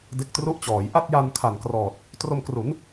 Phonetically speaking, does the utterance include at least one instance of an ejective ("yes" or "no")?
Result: no